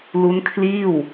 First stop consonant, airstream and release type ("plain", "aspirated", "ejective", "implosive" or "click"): aspirated